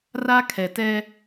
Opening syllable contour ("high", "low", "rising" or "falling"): high